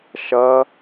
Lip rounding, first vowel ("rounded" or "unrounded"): unrounded